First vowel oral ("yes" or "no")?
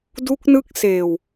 yes